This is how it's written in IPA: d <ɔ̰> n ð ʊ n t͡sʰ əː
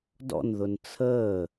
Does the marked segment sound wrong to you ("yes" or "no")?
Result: no